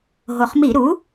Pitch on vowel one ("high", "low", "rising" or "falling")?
low